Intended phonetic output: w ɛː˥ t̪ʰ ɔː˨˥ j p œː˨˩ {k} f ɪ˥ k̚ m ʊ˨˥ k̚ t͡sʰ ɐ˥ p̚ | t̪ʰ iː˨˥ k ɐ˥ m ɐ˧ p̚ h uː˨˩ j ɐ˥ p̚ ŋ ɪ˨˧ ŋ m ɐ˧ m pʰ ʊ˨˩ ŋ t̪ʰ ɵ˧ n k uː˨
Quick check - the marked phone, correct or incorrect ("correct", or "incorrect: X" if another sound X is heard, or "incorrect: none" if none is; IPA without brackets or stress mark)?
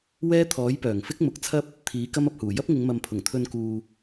incorrect: ŋ